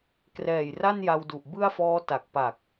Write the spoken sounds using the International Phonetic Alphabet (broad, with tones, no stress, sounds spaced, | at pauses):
k r ɛː˨˩ j r a˥˩ n j a˧ w d u˨˩ ʔ b ɯ˥˩ a̯ f ɔː˦˥ t a˨˩ k̚ p a˨˩ k̚